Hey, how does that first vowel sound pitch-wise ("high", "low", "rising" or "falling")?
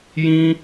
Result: high